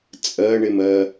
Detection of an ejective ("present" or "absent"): present